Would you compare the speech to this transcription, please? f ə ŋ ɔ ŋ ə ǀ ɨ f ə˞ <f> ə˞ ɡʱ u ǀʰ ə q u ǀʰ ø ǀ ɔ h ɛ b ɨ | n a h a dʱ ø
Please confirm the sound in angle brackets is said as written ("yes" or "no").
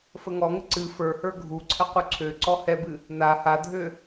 no